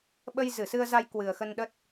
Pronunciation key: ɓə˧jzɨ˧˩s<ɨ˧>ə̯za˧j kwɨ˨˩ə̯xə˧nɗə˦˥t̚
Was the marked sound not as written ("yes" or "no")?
no